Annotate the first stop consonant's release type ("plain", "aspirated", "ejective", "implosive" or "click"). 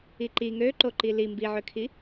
click